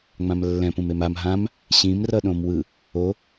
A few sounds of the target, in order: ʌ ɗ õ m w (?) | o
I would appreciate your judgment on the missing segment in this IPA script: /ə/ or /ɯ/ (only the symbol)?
ɯ